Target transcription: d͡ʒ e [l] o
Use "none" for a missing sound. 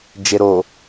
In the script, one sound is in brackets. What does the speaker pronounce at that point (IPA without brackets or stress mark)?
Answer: ɾ